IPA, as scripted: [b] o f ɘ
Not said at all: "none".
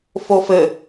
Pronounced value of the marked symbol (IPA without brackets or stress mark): f